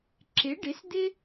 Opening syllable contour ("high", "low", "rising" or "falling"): rising